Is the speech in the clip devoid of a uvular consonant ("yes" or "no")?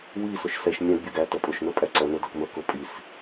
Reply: yes